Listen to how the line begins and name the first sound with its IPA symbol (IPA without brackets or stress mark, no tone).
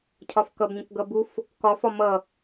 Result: cʰ